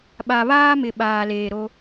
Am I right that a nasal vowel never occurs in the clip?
yes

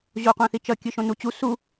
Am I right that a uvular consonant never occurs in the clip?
no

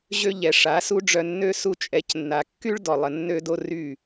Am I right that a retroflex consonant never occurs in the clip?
no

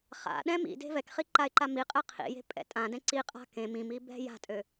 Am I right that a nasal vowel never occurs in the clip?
no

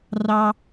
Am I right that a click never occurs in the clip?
yes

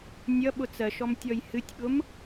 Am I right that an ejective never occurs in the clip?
yes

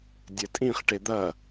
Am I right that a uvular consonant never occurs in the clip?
no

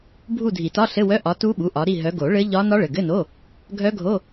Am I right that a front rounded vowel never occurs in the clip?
no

